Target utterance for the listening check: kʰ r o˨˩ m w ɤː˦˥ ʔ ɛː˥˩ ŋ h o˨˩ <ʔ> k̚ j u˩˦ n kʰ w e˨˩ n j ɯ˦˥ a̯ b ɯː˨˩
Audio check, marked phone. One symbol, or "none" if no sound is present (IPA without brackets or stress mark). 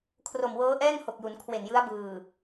none